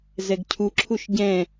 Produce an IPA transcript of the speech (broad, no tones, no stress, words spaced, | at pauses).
zɛɡcʰuǁʰuʃ ɟɛ̃